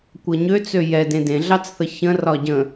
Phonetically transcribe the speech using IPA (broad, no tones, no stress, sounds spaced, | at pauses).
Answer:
kʷ ɤ ɲ ø t͡s ø j ɛ d ẽ d ẽ ɮ ɑ t͡s θ ə ç ə̃ r ɒ ɟ ə̃